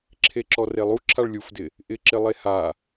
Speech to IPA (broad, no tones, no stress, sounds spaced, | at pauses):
ǁʰ e ǁ ɔ r e lˠ u ǁʰ a ɭ lʲ u f d ɪ | ʔ ɪ ǁ ɪ lˠ e h a